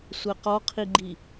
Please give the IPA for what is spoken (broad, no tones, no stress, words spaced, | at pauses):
sʷɛqɔqʰiɡ͡ǃi